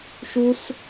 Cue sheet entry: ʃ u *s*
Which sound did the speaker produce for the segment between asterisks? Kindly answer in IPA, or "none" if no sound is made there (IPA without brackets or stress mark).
s